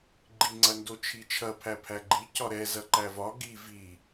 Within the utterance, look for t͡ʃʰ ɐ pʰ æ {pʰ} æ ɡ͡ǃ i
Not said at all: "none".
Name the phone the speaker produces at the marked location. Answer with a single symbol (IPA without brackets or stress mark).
pʰ